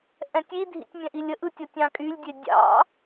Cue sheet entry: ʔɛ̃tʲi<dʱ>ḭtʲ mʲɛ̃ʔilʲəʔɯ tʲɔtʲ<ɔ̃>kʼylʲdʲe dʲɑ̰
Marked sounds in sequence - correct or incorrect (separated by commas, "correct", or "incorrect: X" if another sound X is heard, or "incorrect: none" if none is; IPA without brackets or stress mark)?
correct, incorrect: ɑ̃